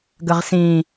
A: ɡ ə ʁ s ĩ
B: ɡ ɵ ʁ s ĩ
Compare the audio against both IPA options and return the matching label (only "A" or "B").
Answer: A